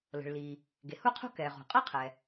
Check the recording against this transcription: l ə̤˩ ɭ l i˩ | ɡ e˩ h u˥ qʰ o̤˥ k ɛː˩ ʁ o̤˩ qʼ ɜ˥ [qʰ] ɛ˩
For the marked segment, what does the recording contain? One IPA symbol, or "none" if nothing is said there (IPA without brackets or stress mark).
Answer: qʰ